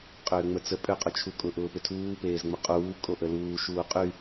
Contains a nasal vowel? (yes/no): no